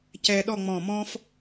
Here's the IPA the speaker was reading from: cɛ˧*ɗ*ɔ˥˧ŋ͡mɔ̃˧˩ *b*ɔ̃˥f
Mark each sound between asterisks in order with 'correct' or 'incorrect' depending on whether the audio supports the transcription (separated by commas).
correct, incorrect